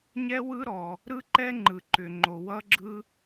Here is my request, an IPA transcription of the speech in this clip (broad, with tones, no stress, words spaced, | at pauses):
ɲɛ˥wɯ˥ɾɔ˩ | ɾɯ˥ǃɛ˥ŋ͡ǃɯ˩ ǃʏ˩ŋ͡ǃo˩ wʌ˥ɡ͡ǁɯ˥